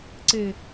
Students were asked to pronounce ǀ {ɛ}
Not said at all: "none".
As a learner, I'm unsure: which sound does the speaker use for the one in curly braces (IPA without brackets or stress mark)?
e